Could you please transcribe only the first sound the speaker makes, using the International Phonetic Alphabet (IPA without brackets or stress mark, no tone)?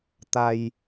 t̪